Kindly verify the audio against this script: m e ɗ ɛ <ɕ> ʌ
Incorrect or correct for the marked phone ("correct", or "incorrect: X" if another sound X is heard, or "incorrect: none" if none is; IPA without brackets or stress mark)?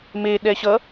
correct